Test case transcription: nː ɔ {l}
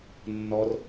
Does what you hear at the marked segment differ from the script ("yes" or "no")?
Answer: yes